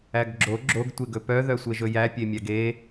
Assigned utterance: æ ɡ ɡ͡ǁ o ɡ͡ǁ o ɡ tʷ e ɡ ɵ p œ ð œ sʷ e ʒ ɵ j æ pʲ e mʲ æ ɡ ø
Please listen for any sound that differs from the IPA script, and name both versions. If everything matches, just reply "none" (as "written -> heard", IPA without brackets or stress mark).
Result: ø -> e